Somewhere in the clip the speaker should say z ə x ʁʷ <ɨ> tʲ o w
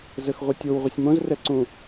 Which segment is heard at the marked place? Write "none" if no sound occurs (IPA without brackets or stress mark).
ɨ